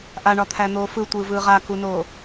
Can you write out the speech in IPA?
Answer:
ʔaɳɒt̪ʰæn̪oː fɯtʷɯːvɯː ʁakunoː

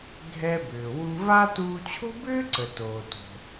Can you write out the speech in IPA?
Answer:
ɡʱɛ˧bʏː˩ wu˧va˥ tuː˧t͡ɕʰo̤˥bʏː˥ǀə˩ toː˩ to̤˩

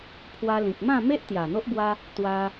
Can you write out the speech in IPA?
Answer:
pʰwa˧lĩ˨k̚mã˥˧me˦ʔ t̪ja˨˩n̪o˦ʔbwa˦ | t̪wa˧

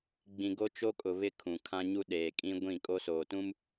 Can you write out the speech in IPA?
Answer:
ɡ͡bĩ˨ɡo˦t͡ʃo˦kʼʊ˨ βɪ˦kʰũ˨ kʰã˦ɲu˦ ɗeː˨kʼĩ˦ ɡʷĩ˦˨ kʼo˦soː˨tũ˦m

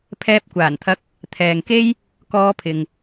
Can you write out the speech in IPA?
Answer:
pʰɛː˧p̚kʷaː˨˩nt̪ʰɐ˧k̚ | t̪ʰɛː˨ŋke˥j | kɔː˧pʰɪ˨ŋ

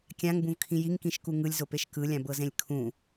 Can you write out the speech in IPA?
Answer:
kʲãŋbũvkʰĩ jiŋkĩʃku ŋɯlʲzopeʃ kɯlʲãbɤzẽlʲ kʰũ

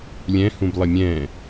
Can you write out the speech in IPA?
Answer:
lʲɛ̃hũblˠə mʲɛ̃

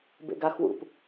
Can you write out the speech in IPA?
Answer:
bḛɡaxwṵp

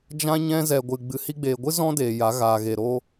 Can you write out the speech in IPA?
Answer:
d͡ʒã˦ɲɛ̃˦ zɛ˨ɡʷɨ˨ ɡ͡bɨ˨hi˧ɡ͡beː˨ɡʷɨ˦ zɔ̃˦deː˨ ja˨˦ɣaː˨ɣe˨ ɾo˦

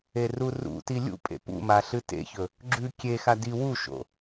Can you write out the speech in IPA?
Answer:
erurṵti lʲṵ pʼḛpṵma ɬɨtḛçɵ | ɡ͡ǁʉ kʲexa di wuʃo̰

